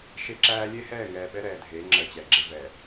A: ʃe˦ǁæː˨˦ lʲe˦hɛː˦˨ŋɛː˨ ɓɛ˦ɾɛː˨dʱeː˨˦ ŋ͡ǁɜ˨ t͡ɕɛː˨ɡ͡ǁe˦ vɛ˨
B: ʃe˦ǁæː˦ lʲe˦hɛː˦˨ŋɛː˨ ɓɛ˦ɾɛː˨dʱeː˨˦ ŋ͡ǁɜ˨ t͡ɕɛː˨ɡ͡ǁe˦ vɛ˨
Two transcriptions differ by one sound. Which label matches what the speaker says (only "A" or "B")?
B